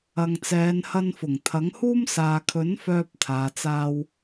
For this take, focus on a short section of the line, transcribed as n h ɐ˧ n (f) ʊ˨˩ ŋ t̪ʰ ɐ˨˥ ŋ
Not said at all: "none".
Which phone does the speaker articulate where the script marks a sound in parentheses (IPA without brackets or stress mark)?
f